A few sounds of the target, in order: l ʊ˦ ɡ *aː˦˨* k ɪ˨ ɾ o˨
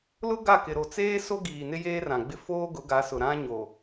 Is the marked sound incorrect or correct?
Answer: incorrect